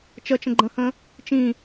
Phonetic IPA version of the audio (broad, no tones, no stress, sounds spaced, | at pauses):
t͡ʃ ə t͡ʃ ə̃ ɡ͡ǃ ə̃ h ə̃ | t͡ʃ ĩ